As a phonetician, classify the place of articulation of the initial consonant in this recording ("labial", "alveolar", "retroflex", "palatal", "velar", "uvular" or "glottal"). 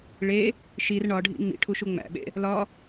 retroflex